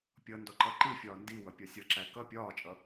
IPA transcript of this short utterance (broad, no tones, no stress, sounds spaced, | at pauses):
pʲ ʌ n d ɔ ǃ ʌ ǃ i fʲ ɒː n d i w ʌ pʲ ɒ sʲ ʌ ǁ æ k ʌ pʲ ɒː t͡ʃʼ ʌ